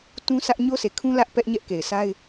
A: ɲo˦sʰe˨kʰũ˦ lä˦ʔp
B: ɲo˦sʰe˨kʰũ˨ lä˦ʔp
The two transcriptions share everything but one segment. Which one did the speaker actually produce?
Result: A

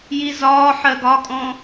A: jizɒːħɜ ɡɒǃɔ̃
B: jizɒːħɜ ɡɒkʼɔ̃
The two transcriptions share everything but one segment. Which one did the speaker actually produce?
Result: B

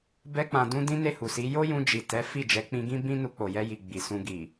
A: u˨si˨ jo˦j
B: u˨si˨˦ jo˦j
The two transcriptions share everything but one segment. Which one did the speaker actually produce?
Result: B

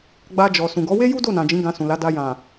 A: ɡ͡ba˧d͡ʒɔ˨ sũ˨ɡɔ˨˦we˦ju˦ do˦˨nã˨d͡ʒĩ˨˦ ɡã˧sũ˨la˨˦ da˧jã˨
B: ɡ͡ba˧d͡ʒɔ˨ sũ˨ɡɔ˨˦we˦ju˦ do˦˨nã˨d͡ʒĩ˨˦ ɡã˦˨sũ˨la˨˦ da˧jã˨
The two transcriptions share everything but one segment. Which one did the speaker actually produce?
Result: A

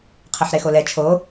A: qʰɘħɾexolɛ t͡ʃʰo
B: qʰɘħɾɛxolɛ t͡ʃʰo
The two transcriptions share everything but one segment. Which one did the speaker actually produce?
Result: A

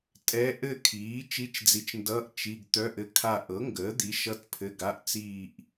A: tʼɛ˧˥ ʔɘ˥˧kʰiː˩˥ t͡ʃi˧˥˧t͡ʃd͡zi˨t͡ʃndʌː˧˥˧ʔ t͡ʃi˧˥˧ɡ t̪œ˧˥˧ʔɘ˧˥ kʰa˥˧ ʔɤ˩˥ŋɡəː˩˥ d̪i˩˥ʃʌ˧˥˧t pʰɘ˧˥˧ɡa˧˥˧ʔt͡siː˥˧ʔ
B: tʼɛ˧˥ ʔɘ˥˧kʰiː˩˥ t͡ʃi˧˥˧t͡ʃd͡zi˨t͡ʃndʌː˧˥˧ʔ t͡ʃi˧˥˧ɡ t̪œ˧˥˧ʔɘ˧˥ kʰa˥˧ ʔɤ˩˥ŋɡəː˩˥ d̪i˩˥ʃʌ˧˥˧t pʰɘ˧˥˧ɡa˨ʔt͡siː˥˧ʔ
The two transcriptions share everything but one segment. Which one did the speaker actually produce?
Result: A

